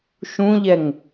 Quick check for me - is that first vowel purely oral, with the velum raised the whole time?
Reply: no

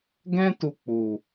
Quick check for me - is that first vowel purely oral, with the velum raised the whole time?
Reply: no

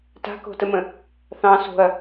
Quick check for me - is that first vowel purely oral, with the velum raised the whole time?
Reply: yes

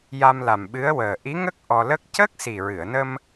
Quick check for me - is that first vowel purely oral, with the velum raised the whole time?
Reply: yes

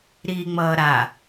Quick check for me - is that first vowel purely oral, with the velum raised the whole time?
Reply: yes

